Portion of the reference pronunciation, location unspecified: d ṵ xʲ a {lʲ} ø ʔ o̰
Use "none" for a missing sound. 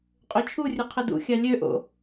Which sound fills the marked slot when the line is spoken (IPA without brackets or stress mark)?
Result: lʲ